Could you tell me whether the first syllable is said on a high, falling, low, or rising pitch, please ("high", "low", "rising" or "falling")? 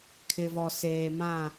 low